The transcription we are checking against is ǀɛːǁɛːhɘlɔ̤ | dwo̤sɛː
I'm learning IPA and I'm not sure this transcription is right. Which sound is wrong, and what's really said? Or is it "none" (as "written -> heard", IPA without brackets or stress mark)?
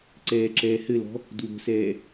none